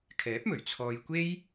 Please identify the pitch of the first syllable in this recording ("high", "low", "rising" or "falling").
rising